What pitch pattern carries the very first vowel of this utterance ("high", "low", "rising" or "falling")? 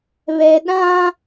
low